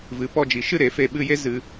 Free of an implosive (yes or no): no